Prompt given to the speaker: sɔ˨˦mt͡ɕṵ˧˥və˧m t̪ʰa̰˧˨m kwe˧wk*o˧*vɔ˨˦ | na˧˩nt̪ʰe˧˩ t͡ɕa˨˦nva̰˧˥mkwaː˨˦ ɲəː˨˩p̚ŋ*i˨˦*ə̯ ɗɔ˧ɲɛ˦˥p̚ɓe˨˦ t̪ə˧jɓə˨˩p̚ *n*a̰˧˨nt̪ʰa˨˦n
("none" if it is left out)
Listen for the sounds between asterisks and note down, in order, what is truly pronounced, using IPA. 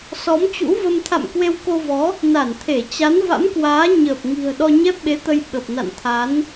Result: o˧, i̤˨˩, n

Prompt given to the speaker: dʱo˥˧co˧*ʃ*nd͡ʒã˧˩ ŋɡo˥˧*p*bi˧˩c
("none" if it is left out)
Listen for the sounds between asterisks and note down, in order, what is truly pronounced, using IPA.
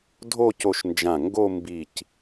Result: ʃ, m

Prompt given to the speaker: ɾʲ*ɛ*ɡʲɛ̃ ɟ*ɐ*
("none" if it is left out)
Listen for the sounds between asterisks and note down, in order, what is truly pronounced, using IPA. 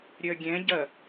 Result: œ, ɐ

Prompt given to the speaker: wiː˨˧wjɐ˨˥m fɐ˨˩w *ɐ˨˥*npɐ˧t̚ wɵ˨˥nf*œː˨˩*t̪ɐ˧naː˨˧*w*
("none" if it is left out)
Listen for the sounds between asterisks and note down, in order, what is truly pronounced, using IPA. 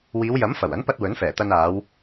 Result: ɐ˨˥, ɛː˨˩, w

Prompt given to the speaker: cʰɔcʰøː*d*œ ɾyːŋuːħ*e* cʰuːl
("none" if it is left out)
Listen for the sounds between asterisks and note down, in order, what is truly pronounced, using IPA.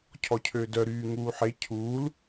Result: d, e

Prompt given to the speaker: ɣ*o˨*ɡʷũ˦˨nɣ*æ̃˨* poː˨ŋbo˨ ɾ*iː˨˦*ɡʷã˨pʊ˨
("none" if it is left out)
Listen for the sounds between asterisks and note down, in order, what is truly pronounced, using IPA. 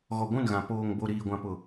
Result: ɔ˨, ã˨, iː˨

